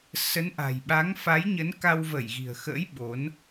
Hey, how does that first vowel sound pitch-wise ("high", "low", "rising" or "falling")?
rising